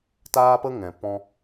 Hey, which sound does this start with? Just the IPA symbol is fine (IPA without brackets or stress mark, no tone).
t